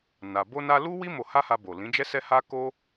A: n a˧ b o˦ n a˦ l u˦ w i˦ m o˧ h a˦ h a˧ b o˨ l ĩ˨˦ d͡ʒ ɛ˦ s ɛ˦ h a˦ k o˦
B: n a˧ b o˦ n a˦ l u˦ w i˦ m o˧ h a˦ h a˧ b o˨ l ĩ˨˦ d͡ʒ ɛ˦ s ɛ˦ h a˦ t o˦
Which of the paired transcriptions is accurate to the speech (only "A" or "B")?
A